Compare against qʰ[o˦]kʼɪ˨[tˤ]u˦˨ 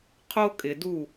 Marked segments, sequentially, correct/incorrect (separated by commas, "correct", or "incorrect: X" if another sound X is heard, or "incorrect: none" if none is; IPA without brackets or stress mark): correct, incorrect: d